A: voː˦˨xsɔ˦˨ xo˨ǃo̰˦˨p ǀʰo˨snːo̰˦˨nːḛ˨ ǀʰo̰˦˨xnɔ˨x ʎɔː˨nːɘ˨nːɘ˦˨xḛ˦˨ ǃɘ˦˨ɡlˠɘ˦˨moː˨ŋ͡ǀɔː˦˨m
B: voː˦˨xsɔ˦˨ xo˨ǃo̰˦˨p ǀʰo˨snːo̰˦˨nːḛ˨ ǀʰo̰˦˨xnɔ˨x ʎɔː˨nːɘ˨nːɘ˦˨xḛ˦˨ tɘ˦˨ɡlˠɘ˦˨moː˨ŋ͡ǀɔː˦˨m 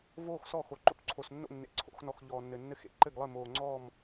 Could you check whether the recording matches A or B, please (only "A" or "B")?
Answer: A